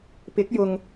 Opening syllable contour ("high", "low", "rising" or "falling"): rising